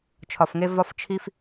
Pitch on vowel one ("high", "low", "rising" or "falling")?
low